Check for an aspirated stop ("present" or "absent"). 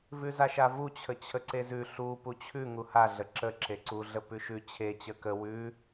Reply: present